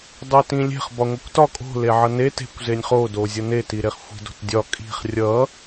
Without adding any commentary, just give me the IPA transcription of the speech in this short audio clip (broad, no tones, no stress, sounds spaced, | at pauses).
dˤ e t ĩ lʲ e̤ χ b ɒ ŋʷ i kʷ t ɒ kʼ o̤ l e ʕ ʌ n e t e̤ kʷ z e nʲ χ o d o zʲ ʌ n e t i ɾ e χ xʷ i̤ d o̤ t dʲ ɒ kʼ i̤ χ rʲ ʌ